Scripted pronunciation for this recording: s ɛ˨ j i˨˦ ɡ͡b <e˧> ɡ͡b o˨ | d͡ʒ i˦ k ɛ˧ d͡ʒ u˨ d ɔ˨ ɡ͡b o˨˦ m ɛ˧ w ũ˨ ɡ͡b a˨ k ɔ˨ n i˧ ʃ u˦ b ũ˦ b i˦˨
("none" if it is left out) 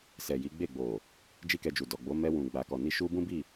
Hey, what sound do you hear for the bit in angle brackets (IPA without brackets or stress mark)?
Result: e˦˨